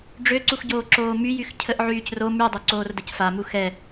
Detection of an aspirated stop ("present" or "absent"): present